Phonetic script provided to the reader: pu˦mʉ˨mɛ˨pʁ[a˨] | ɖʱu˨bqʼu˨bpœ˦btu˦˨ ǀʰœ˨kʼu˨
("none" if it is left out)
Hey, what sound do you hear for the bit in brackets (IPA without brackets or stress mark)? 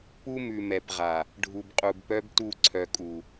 a˨